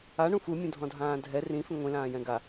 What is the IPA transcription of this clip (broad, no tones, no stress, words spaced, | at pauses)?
aɳũ fu mʲũdʱɔ̃dʱãːdʱɛ rĩfĩ ŋʷĩlãːjɛ̃ ɡa